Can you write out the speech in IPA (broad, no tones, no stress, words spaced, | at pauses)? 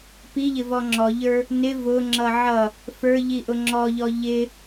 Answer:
piʎɪvɔ ŋ͡ǁɔʎə˞ | nɪ vʊŋ͡ǁʌ ʕʌ | fə˞ʎiʔʊ ŋ͡ǁɔʎɔ ʎɪ